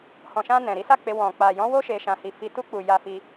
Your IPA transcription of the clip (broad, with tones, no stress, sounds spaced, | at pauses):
h ɔ̃˨ ʃ ã˧ n ɛ̃˨ ɾ i˨˦ s a˦˨ k͡p e˧ w ɔ̃˨ k͡p a˨ j ɔ̃˨˦ w o˦ ʃ e˧ ʃ ã˧ h i˧ f i˧ t u˧ k͡p u˨ j a˧ f i˧